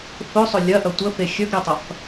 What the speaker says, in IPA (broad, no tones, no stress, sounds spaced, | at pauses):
f ɵ sˤ ɵ lʲ ɐ ʔ ɐ tʷ ə f e xʲ ɵ ɡ ɾ e tˤ ɐ f